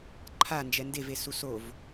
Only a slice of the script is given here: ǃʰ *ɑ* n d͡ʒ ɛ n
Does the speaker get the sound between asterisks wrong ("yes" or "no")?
yes